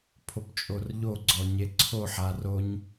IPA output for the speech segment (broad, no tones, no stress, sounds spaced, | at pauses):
pʰ o p t͡ʃʼ o r ʎ o ɡ͡ǀ ɔ ɲ e ǀʰ o ħ a r o ɲ